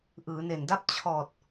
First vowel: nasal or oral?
oral